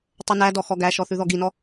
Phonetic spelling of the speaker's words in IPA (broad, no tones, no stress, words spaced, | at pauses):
tˤɵnædɔ xɔɡæʃɔ θʉðɔɡinɔ